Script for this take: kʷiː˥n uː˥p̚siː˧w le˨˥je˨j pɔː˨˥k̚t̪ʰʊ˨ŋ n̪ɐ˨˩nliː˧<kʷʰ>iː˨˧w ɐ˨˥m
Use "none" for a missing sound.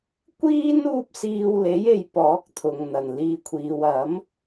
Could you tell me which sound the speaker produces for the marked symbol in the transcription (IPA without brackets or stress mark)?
kʷʰ